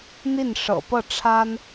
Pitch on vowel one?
falling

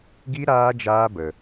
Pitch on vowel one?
high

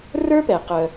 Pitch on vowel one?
high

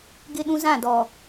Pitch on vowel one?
high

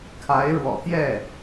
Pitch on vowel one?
rising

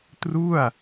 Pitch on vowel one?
falling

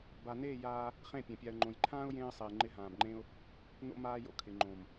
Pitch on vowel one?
low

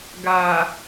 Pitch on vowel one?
low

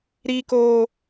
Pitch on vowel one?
high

